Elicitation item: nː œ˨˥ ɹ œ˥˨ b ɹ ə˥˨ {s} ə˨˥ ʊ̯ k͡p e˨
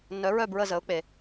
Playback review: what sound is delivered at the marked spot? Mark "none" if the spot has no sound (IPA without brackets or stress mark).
z